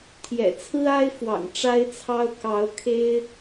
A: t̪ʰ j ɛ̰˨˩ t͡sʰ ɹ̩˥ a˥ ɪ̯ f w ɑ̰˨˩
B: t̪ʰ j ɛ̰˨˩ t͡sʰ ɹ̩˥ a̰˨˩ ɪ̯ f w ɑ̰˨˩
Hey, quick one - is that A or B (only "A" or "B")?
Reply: A